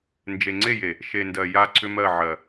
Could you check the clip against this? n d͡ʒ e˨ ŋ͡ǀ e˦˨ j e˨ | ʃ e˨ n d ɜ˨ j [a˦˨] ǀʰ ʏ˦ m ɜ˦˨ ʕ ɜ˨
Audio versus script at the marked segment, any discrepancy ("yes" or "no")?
no